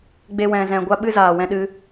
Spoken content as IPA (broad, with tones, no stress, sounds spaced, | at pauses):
ɡ͡b e˦ w ɛ̃˧ z ɛ̃˧ ɡʷ a˦ ɓ ɨ˦ z aː˨ w ɛ̃˧ ɗ ɨ˧